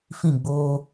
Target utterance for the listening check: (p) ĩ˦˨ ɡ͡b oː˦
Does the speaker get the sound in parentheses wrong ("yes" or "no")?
yes